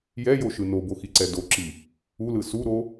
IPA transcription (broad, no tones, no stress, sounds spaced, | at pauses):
j ɛ j o ʃ ɯ n o b o x i ǀ ɛ d o ǁ i | u l ɯ s u ɾ o